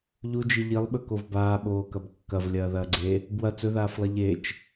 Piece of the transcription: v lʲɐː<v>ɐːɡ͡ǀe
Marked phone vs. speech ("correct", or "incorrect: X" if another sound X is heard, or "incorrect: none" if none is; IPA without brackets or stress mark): incorrect: ð